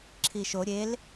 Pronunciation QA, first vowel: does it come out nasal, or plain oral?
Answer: oral